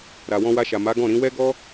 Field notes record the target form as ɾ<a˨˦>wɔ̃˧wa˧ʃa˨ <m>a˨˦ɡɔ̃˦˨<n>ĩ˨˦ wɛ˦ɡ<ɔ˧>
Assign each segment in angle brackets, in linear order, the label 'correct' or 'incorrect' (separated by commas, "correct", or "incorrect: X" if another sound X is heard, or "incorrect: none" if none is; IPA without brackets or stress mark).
incorrect: a˨, correct, incorrect: ɾ, incorrect: ɔ˦